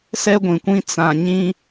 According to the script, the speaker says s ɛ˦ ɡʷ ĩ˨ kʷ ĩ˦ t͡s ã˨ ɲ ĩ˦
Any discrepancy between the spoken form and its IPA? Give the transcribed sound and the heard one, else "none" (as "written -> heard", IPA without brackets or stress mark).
none